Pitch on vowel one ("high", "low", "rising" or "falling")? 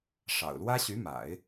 low